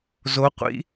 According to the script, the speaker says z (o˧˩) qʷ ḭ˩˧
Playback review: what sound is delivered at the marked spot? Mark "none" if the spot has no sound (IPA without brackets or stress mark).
o˩˧